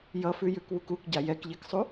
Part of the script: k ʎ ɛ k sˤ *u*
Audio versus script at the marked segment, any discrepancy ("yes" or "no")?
no